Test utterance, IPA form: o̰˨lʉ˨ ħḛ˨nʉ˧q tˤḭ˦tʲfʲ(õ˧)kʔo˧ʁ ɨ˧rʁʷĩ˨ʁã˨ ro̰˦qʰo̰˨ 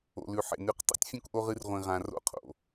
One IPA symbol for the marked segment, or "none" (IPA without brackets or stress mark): õ˧